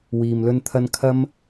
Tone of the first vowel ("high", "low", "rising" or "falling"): low